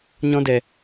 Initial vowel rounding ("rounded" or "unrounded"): rounded